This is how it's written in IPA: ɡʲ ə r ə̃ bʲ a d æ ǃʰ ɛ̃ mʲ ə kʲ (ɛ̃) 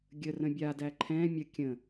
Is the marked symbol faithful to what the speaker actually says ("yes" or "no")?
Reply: no